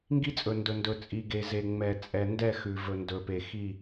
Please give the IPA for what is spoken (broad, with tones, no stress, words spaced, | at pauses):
ŋɡi˦t͡sʼɵ˨ndɵ˨ ndɵ˨t͡sʼi˨ ɡe˨ ze˨ŋ͡mɛ˨ t͡sʼɛ˨ndɛ˦˨xʉ˨ vɵ˨ndɵ˨pe˨ xi˦˨